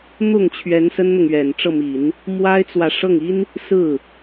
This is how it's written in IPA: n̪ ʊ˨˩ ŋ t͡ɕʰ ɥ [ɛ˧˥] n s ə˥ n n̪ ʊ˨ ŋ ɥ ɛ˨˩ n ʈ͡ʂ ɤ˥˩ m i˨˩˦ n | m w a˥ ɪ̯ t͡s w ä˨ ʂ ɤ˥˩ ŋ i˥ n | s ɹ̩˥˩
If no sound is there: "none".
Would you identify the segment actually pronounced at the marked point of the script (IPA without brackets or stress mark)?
ɛ˧˥